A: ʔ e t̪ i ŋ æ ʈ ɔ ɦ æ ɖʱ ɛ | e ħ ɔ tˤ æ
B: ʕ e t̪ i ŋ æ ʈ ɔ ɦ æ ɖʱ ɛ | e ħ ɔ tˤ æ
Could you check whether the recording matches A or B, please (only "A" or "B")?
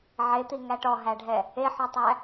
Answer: B